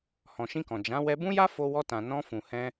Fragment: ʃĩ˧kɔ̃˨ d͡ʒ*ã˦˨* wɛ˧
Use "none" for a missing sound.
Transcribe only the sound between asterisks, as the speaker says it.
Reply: ã˨˦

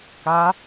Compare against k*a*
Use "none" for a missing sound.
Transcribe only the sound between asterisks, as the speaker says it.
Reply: a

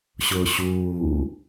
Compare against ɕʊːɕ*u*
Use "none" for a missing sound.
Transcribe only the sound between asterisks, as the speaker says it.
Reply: uː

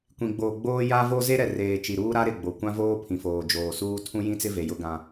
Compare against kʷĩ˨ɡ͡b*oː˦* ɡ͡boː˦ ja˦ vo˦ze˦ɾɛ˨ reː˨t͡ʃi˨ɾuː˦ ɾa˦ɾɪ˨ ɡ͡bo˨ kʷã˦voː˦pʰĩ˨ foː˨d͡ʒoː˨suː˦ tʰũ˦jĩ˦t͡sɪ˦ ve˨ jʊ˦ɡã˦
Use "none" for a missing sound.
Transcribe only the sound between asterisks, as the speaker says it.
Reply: oː˨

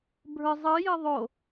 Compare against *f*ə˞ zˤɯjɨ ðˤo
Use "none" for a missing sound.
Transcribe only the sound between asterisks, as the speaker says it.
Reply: bʱ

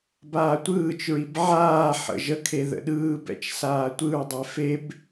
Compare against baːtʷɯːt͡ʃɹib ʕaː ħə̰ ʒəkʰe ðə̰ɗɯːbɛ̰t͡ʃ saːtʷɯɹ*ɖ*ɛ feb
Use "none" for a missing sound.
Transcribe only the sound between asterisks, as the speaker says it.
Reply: dˤ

